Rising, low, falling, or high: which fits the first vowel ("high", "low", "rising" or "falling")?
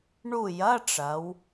falling